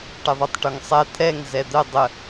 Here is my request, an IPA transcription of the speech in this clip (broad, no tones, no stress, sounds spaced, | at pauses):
ʈ ɘ ðˤ o tˤ ʈ o ŋ sˤ ɛ t̪ʰ ɛ ŋ z ɛ d̪ ə dˤ ə